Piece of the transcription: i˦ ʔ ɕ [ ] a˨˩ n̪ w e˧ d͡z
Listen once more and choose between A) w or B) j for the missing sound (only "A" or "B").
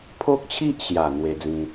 B